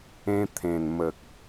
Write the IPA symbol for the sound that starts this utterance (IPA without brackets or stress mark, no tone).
ẽ